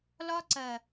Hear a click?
yes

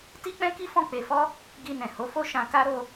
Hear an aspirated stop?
no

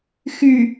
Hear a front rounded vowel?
yes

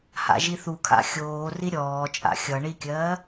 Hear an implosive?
no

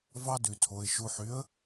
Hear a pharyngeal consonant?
yes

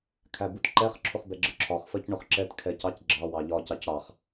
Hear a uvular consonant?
yes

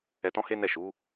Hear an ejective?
no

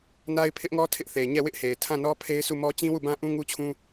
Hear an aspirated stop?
yes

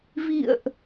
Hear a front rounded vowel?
no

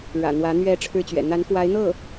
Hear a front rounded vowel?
no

